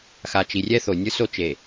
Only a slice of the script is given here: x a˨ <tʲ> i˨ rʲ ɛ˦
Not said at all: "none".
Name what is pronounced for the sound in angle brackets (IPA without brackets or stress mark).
t͡ʃ